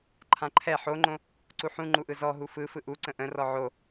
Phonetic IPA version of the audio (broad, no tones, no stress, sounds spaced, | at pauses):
ǃʰ ã ǃʰ ɛ ħ o ŋ͡ǃ õ | ǀ u ħ ũ ŋ͡ǃ u ʔ ɯ z ɔ ɦ u f ɯ f ɯ ʔ u ǀ ə̃ ʔ ə̃ r ɔ ʕ o